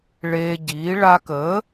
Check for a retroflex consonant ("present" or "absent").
present